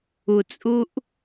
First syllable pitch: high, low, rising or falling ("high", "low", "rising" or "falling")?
low